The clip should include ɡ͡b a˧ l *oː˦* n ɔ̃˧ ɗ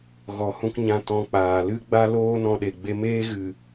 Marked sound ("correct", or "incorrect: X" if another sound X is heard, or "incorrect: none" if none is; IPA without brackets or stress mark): incorrect: oː˧